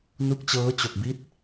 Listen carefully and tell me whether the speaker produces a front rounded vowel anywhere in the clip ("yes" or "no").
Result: no